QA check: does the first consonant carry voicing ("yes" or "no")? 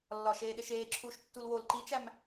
yes